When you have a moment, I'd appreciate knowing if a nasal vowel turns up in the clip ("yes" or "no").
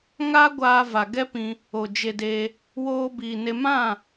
yes